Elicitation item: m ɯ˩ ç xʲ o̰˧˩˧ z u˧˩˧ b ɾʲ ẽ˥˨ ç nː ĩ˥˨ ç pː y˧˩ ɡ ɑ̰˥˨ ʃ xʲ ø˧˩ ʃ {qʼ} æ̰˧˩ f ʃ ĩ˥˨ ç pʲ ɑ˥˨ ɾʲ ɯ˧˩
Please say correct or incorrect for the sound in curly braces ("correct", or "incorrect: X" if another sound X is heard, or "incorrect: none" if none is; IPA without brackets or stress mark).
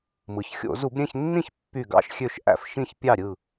incorrect: ʔ